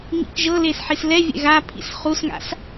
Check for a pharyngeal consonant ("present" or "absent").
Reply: present